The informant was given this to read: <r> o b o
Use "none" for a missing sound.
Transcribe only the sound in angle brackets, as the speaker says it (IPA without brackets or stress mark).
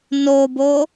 n